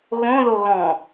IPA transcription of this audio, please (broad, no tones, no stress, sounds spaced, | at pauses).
ɣ õ ð o ɣ ɔ̃